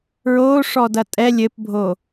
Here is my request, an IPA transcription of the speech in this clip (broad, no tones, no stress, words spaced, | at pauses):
ɹo ʂɔdɐtʼɛ lʲɘpbʱo